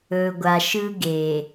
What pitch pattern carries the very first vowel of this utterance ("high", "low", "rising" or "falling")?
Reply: low